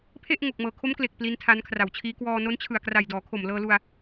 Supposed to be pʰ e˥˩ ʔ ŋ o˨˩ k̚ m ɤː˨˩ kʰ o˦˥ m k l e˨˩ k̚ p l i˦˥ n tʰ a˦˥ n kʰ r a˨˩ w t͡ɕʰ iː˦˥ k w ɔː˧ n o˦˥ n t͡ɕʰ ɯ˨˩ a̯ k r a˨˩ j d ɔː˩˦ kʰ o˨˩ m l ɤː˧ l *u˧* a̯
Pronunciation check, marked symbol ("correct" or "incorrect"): correct